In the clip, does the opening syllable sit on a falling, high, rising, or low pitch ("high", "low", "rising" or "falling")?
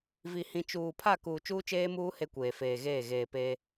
low